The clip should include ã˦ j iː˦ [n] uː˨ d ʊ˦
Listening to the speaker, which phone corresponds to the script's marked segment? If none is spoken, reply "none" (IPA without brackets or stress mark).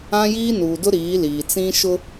n